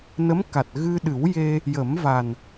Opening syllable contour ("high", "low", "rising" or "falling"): rising